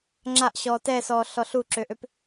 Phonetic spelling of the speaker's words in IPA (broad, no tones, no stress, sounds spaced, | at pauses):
ŋ͡ǁ a ʔ ɕ ɔː t ɛ s ɔː ɬ ɔ ɬ u ǁ ø ʔ ø p